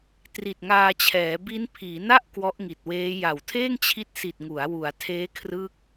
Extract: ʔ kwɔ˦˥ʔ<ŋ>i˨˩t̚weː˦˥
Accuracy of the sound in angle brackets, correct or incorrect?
correct